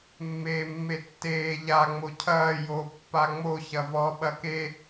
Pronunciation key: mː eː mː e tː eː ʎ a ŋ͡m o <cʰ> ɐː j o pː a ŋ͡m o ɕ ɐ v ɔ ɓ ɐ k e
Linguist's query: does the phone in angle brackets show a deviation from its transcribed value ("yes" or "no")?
no